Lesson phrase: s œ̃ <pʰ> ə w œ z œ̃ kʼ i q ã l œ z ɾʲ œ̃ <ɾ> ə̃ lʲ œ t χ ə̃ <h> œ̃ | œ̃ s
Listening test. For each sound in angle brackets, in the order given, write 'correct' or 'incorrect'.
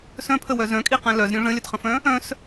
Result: correct, incorrect: ʐ, incorrect: f

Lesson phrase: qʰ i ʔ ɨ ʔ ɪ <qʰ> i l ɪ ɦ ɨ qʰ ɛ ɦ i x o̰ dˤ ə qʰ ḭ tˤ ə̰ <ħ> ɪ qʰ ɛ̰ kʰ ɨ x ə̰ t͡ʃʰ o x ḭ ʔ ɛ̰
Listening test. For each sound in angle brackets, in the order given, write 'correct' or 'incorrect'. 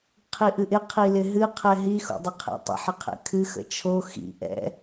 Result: correct, correct

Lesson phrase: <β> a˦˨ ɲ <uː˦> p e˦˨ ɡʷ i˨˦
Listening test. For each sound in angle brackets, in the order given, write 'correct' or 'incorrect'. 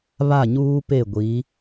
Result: correct, correct

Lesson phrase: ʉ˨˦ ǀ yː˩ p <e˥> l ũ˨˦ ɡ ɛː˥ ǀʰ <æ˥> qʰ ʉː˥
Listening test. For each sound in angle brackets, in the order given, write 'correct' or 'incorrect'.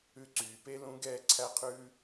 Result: correct, correct

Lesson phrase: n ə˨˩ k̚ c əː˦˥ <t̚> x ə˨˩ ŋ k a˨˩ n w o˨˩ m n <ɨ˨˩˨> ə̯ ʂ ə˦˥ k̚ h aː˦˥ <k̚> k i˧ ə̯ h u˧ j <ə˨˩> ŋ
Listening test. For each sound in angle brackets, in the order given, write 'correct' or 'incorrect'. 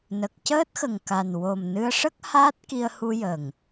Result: correct, incorrect: ɨ˧, incorrect: t̚, correct

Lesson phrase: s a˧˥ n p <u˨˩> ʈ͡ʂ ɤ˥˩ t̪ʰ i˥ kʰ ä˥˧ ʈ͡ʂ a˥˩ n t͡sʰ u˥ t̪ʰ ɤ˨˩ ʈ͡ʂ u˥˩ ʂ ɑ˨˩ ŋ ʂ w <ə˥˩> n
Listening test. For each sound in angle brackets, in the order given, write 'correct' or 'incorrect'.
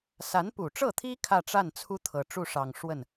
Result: correct, correct

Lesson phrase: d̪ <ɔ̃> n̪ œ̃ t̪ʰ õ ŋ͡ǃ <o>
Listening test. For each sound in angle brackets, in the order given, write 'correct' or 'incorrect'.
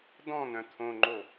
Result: correct, correct

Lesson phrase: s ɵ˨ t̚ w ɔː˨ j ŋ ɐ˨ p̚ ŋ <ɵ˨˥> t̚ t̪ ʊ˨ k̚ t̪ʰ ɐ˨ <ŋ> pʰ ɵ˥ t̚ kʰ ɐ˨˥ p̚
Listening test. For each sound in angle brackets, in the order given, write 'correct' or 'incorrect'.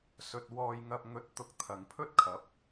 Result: correct, correct

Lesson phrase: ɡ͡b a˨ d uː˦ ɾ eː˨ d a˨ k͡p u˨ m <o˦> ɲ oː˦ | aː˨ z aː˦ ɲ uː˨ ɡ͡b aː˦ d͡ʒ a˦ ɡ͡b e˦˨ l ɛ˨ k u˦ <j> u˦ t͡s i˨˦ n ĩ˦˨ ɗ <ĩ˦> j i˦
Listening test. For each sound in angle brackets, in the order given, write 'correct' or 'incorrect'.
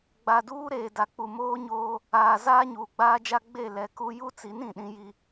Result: incorrect: oː˦, correct, correct

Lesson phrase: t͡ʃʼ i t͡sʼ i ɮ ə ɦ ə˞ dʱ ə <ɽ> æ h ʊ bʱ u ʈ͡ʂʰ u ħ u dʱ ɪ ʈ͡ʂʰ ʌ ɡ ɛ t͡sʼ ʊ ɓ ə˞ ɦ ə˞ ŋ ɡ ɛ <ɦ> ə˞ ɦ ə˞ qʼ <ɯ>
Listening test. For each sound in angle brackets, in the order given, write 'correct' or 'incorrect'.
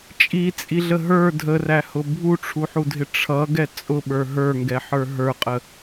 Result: incorrect: r, incorrect: ħ, incorrect: ə

